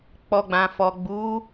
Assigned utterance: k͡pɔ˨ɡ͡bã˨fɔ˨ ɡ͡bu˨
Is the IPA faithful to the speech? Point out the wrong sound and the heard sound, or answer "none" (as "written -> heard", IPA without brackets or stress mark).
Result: u˨ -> u˨˦